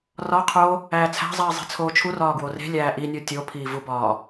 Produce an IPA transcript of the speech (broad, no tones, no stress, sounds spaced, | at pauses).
r ɒ qʰ o | æː t͡sʰ æ̤ zˤ iː zˤ e̤ t͡sʰ oː t͡ʃʰ u r ɒː ɡ w o r e̤ lʲ æː ʔ i nʲ o tʲ o pʰ iː v u b ɒː